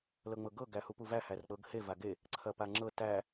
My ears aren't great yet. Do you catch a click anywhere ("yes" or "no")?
yes